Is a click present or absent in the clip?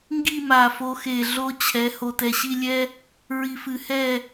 absent